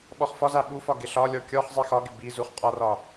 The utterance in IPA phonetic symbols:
ɓ ɔ χ f ɒ z a ɓ u f ɒ ɡ ɪ ɬ ɒ lʲ ɔ kʲ ɔ χ zˤ i x ɒ ɡ ɪ b i z u χ qʼ ɒ r ɒ

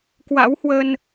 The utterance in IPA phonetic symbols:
k w a̰˧˥ w h w ə˧ n

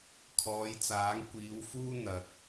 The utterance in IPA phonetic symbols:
kʰ ɔː˨˧ j t͡s aː˨˥ ŋ kʷ iː˨˧ w f uː˥ n̪ ɐ˨ k̚

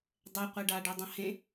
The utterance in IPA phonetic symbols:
dˤ ɛ qʷ e ɖ aː ɖ ɛ dˤ ɐ̃ h ẽ

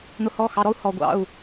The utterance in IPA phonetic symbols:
n̪ ʊ˨˩˦ h ɔ˩˧˩ x ɑ˩˧˩ ɾ ɔ˥˧ u̯ h ɔ˩ ɡʷ ɑ̰˩˧˩ u̯

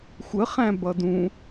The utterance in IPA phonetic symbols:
xʷ ə χ æ̃ b ʌ d ũ

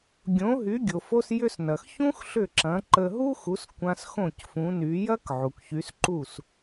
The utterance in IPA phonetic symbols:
ɡʲ õ˩˥ ɦ y˩˥ ɡʲ o˩ f o˧ s j ʏ˧ s n ɐ˩ x ç ũ˥ x ɬ ʏ˥˩ ǁ ɐ̃˩˥ ǃ ə˧ ɦ u˥ x u˩˥ s kʷ ã˧ s x õ˥˩ c f ũ˩˥ n y˩˥ j ɐ˥ k ʕ u˩ k ç y˩˥ s ǃ u˥˩ s

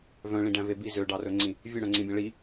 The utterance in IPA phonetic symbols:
v œ̃ ɭ ĩ ɖ æ̃ v e b i z ø ɖ ɑ r ɵ ŋ͡ǀ ĩ | vʲ ø ɽ œ̃ ŋ͡ǀ ĩ bʲ æ̃ ɭ i

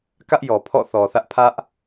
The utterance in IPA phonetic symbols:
k ä˦ ʔ j ɔ˨ pʰ ɔ̰˦˨ θ ɔ˨ θ ä˦ ʔ pʰ ä˦ ʔ

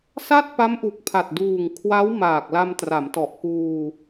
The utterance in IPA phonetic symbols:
s a˥˩ t̚ p a˦˥ m ʔ u˨˩ k̚ pʰ a˨˩ t̚ d uː˨˩ ŋ kʰ w a˦˥ w m aː˨˩ k̚ l a˧ m t r a˩˦ m t ɔ˨˩ ʔ k uː˧

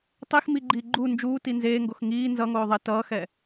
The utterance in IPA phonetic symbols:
tˤ i x m i ɡ͡ǃ iː ɡ͡ǃ u n d͡ʒ uː t i n z eː ŋ ɡ o x ŋ iː n z ʌ ŋ oː ðˤ e t ʌː x ɛ

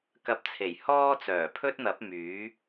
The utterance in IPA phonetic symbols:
k ɐ˧ p̚ t͡sʰ e˨˩ j h ɔː˥ t͡s œː˨˩ pʰ ɵ˥ t̚ n̪ ɐ˨˥ p̚ m yː˨˥

